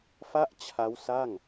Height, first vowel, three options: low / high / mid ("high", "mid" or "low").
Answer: low